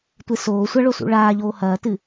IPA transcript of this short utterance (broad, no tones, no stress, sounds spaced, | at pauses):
tʷ e s oː sʷ a ɭ o s ṵ ɭ aː ʎ oː h ɐː t ɨ